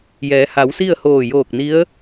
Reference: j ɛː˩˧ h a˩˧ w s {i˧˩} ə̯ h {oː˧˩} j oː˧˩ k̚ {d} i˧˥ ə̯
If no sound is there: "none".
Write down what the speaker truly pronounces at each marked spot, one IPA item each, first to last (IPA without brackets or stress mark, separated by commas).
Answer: i˥˨, oː˧˩, n